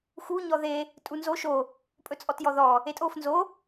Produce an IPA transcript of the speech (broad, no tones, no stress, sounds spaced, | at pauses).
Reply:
x u ɲ ɔ ð e | tʼ u n z o ʃ o | pʼ ɵ t͡sʼ ɔ t j ɔ ð ɔ | e tʼ o f n z o